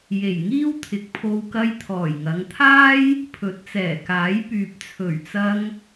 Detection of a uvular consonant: absent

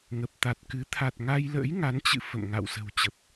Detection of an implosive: absent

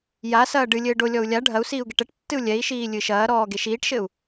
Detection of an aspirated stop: absent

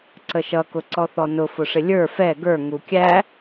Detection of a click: present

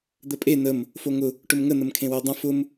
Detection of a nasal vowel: present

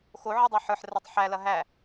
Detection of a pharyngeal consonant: present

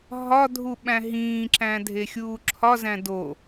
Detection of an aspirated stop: present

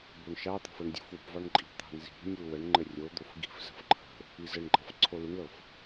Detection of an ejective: present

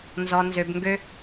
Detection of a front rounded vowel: present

